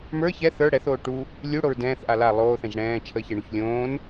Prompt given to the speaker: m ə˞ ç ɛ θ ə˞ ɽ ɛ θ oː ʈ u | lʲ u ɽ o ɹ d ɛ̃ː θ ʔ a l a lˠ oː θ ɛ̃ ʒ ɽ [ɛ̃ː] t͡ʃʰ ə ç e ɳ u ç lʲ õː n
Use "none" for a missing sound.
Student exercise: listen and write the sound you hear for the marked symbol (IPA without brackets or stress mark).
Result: ɛ̃ː